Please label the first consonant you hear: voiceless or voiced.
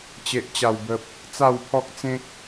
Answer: voiceless